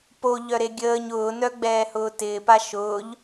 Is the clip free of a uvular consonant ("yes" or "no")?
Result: yes